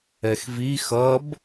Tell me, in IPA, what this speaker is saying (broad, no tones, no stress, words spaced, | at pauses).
ɛxvi xʌb